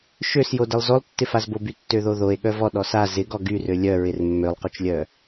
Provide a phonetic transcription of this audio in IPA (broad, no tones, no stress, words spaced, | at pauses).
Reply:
ʃøsjodəlˠ zolˠtːɪfazbo bytːøðoðoe̯ ɠœvɔ ɗɔsa zɪɡɔ ɡyrø lʲœ ɹɪrmːølˠqot͡ʃlʲœ